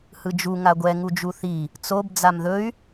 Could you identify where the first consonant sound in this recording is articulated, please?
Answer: glottal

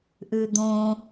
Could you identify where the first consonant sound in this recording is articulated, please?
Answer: glottal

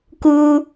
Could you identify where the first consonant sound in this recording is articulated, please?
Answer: velar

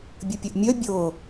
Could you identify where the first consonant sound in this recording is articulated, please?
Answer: labial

